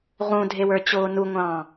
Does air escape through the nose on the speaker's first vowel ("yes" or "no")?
yes